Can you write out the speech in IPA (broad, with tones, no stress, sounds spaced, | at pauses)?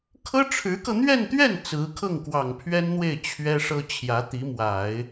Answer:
kʰ ɤ˥ ʈ͡ʂʰ ɻ̩˧˥ k ɤ˧ n̪ ɥ ɛ˥˧ n t̪ ɥ ɛ˥˩ n t͡s ɹ̩˧˥ kʰ ɤ˥˩ ŋ k w ɑ˨˩ ŋ pʰ ɥ ɛ˥ n n̪ w e˥˩ ɪ̯ t͡ɕʰ ɥ ɛ˥ ʂ ɤ˥ t͡ɕʰ j ä˧˥ t̪ i˧˥ m w a˨˩˦ ɪ̯